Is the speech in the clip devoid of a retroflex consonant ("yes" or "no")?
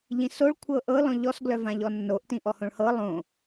no